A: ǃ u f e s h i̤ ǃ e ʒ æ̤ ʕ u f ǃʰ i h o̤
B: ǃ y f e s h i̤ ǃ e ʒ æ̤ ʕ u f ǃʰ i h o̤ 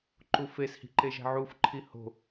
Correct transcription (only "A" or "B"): A